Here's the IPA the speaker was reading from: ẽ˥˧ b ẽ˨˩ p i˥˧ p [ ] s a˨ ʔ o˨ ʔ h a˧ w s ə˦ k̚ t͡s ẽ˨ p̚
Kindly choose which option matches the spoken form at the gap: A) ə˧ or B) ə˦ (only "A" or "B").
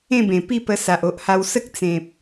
A